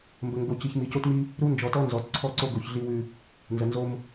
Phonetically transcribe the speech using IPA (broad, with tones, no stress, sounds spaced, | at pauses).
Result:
m b ə˨ ŋ ɡ o˨ c i˨ ç m i˨ c o˦ t m i˦ | ɾ u˦ n d͡ʒ ɔ˨ t ɔ˦ n z ɔ˨ t ǀʰ ɔ˦ ǀ o˦ ɡ o˨ ç ɮ i˦ w ʉ˦ | n z ə˨ n z o˦ m